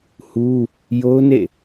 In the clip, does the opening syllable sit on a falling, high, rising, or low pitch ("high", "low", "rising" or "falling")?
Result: high